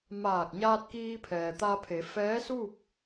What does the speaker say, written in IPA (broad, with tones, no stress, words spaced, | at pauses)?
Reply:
maː˧˩k̚ɲaː˧t̚kiː˧pʰɛː˩ t̪a˧pʰe˩˧fɛː˧˥suː˥˨p̚